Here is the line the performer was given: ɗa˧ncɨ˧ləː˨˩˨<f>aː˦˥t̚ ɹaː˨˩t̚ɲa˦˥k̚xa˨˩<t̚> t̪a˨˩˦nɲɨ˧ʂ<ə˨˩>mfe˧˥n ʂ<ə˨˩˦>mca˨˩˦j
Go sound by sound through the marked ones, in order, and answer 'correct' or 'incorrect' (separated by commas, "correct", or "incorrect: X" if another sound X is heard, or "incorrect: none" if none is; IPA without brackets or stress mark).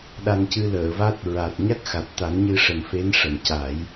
incorrect: v, correct, correct, incorrect: ə˨˩